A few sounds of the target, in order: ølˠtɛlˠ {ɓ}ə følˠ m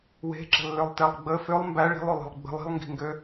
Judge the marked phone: incorrect: ɡ͡b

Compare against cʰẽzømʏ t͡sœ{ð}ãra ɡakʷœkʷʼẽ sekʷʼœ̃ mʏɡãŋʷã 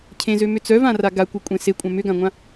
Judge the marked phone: incorrect: v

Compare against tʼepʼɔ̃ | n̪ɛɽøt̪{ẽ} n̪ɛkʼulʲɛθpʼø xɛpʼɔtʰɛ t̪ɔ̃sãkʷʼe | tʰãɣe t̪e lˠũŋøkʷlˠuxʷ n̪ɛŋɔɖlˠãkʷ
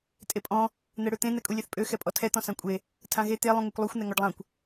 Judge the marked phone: correct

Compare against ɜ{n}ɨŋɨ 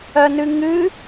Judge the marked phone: correct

